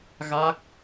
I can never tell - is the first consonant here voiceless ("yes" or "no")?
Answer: no